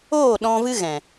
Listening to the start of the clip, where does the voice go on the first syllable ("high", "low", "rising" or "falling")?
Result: falling